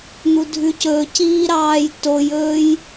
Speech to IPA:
n̪udʱʉcɵciː ɾɑːjtojɵːj

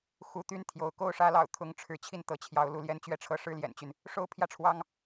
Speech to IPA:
xu˧˥t̪y˥˩nt̪ʰjo˧˥ʊ̯ ko˥˩ʊ̯ʂä˥lɑ̰˨˩ʊ̯ t̪ʰʊ˥˩ŋʈ͡ʂʰɻ̩˧˥ t͡ɕʰi˥˩nt̪ɤ˧˥t͡ɕʰjɑ˧˥ʊ̯lu˧˥ ljɛ˥nt͡ɕɥɛ˥ʈ͡ʂʰɤ˥˧ ʂɻ̩˥˩ljɛ̰˨˩nt͡ɕy˦n | ʂo˥ʊ̯pʰjä˥˩ʈ͡ʂʰwɑ˥ŋ

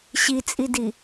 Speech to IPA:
ɕit͡sʼidi

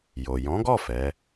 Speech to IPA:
jo˨ jɔ̃˨˦ɡɔ˦˨ fɛ˨˦

